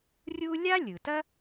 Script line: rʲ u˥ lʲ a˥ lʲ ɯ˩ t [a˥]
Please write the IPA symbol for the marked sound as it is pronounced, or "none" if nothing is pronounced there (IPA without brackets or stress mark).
ɐ˥